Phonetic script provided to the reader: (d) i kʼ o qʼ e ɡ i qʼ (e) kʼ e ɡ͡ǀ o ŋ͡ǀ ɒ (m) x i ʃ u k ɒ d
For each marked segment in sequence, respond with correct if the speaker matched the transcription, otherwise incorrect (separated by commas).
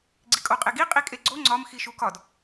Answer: incorrect, incorrect, correct